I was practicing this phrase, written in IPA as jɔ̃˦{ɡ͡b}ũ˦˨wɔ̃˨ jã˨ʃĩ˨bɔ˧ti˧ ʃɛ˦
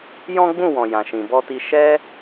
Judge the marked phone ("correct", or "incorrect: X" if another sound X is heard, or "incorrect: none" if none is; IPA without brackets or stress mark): correct